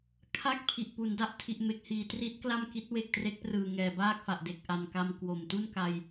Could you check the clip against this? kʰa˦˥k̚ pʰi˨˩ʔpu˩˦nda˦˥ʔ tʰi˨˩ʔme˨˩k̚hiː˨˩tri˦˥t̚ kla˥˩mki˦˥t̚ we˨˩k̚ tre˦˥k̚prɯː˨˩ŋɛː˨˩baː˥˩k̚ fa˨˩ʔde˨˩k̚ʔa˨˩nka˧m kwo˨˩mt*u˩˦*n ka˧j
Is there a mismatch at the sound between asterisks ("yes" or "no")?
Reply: yes